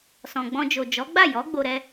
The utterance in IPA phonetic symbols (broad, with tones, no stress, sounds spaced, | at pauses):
s ɔ̃˨ ɡ͡b ɔ̃˧ d͡ʒ o˨ d͡ʒ ɔ˨˦ ɡ͡b a˦˨ j ɔ˨˦ ɡ͡b o˧ ɾ ɛ˦